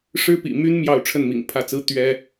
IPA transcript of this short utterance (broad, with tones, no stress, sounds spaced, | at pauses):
ʂ ɻ̩˦ p ḭ˨˩ m y˦ n m j ɑ˥˨ ʊ̯ ʈ͡ʂʰ ə˥˨ n m ḭ˨˩ ŋ pʰ ä˥˨ t͡s ɹ̩˦ t̪ ɥ ɛ˦